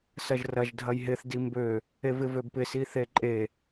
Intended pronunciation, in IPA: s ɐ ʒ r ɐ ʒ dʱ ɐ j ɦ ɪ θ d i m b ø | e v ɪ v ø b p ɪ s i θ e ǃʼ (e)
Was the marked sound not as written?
no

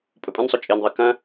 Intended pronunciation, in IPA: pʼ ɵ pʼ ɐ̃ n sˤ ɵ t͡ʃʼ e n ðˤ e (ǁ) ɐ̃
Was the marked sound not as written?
yes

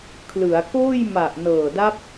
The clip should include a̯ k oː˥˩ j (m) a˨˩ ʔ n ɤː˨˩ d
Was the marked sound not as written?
no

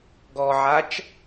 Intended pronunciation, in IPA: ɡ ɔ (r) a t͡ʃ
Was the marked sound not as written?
yes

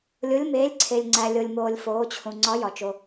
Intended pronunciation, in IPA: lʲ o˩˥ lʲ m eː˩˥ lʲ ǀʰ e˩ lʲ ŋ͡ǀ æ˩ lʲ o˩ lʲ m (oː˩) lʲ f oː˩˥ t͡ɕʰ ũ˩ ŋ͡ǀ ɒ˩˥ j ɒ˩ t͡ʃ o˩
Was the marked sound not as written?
no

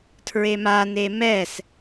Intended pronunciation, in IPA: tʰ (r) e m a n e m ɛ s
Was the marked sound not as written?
yes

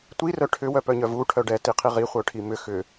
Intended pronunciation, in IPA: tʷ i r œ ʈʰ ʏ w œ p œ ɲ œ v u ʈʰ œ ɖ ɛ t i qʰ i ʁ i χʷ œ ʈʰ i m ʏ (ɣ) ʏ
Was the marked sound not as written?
yes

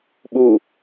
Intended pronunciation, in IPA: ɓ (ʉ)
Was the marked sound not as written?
yes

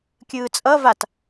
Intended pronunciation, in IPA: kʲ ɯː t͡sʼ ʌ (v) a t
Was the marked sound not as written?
no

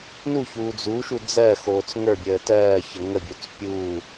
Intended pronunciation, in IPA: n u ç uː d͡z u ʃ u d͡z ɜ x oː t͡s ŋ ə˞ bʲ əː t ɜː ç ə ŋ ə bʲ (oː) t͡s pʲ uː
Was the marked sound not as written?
yes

